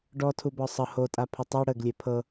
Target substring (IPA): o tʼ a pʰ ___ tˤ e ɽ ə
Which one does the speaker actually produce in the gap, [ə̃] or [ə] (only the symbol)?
ə